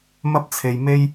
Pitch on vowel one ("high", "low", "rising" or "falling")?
high